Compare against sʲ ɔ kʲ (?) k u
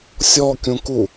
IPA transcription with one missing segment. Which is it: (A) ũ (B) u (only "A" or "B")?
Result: A